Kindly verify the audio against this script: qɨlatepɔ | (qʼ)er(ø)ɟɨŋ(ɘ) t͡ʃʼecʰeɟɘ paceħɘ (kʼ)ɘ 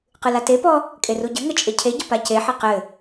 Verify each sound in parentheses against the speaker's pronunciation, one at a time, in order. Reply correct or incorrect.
incorrect, incorrect, correct, incorrect

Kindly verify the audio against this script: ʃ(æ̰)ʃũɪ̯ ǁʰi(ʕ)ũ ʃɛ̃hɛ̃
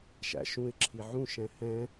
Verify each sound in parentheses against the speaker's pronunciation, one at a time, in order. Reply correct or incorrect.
correct, correct

